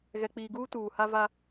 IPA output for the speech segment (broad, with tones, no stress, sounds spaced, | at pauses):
ɣ ɛ˨ k͡p iː˨ ɡ uː˦ t uː˨ h a˦ v a˦